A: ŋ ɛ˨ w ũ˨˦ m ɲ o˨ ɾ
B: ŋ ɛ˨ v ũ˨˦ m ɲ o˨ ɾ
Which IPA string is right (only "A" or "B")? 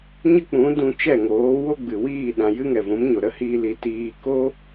B